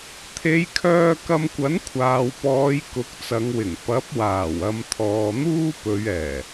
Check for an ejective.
absent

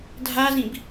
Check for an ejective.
absent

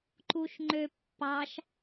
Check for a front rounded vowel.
present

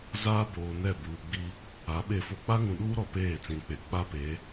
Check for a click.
absent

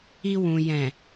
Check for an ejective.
absent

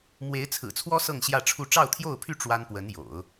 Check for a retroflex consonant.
present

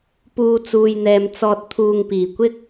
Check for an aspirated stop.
present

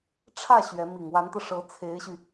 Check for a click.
absent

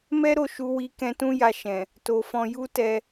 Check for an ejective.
absent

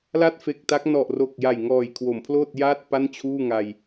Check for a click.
absent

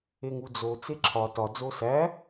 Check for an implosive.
absent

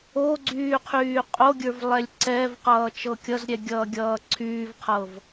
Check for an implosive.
absent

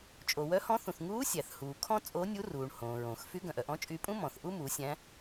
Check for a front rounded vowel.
present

